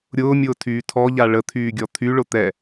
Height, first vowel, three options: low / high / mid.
high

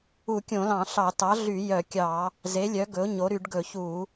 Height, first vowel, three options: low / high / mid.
high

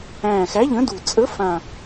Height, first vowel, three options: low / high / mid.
low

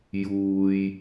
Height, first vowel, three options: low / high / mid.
high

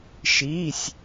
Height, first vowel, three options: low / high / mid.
high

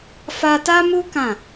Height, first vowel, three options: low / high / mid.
low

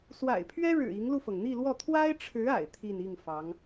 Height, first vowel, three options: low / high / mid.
low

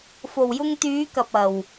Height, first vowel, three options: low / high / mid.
mid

